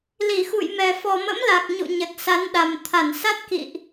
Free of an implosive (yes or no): no